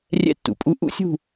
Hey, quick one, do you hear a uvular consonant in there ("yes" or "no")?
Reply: no